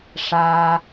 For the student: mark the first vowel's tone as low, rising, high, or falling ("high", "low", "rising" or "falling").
high